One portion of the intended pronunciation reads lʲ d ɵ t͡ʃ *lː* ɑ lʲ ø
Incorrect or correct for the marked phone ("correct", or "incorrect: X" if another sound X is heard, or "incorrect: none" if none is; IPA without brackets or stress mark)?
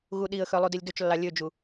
correct